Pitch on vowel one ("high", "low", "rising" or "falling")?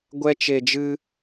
high